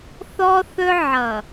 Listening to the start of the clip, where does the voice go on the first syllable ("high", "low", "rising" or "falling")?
high